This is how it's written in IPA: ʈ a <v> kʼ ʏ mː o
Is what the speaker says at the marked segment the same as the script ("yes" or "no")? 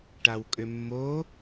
no